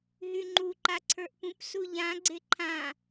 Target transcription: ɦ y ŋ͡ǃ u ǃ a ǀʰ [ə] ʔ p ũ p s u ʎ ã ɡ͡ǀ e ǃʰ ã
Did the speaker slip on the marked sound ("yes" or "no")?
yes